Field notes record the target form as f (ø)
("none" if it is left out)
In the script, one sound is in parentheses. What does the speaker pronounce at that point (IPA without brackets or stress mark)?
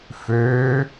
ø